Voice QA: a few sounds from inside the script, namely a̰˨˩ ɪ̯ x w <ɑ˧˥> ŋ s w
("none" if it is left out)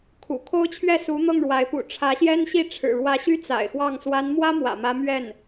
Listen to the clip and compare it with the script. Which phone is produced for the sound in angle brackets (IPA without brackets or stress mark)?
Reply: ɑ˥˩